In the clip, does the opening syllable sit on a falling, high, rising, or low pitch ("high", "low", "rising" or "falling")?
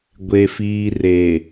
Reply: low